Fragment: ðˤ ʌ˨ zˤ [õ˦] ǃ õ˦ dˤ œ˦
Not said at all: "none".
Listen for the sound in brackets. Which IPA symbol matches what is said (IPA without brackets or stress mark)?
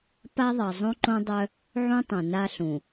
õ˦